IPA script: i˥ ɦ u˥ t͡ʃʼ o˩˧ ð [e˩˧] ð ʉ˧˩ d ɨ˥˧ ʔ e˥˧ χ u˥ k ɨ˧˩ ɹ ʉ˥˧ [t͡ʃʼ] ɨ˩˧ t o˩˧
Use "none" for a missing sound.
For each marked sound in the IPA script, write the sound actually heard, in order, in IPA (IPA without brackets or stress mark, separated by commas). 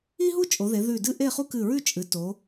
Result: e˩˧, t͡ʃʼ